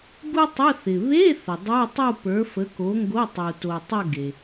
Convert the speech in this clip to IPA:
ɡ u˥ tˤ ə˧˥˧ θ ɪ˩ β e˧˥˧ θ ə˩ dˤ ə˞˧˥˧ tˤ u˥˧ p ə˞˨˥ f ə˨˥ k o˨˥ ŋ ɡ o˧˥˧ tˤ u˩ t o˩ tˤ ə˥˧ ɡ e˩

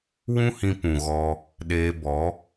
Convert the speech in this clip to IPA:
w ũ˦ h ĩ˧ p ũ˨ ɣ ɔ˧ | ɗ eː˧ b ɔ˨˦

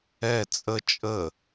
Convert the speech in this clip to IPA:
ɛ t͡sʼ ə t͡ʃʼ ə

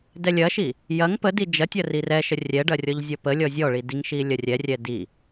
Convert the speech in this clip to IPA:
d ɛ lʲ ɐ ʃ i | j ɐ ŋ p ə d i d͡ʒ ɐ tʲ ɐ r i r ɛ ʃ ə rʲ ɛ ɖ ɐ rʲ ɔ ʎ zʲ ɔ p ə lʲ ɔ zʲ ɔ ɭ i d i ŋ ʃ i lʲ ɐ rʲ ɛ rʲ ɛ d i

